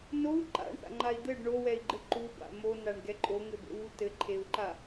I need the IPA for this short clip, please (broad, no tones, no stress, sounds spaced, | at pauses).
n o u̯ ǃ a̰ ɳ θ a̰ ŋ͡ǃ a i̯ d̪ ɘ ɖ ɳ o w ɛ i̯ ɡ͡ǃ ɘ ǃ u b a̰ m o n a ɳ ɡ ɛ ǃʼ o ŋ ɘ b ḛ w u t ɘ ǃʰ e u̯ ǃ a